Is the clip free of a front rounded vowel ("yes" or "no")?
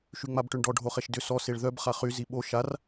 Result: no